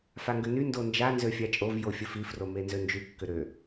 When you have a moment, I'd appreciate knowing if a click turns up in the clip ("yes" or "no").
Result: no